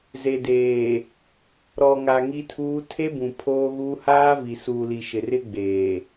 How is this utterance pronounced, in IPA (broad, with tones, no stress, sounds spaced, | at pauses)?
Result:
z e˨ d eː˨ | ɾ ɔ˨ ŋ a˨ ŋ i˦ tʰ uː˦ tʰ e˦ b ũ˨ pʰ oː˦ ɣ uː˦ h aː˦ v i˨ s uː˨ l i˨ ʃ ɪ˨ r ɪ˦ ɡ͡b eː˨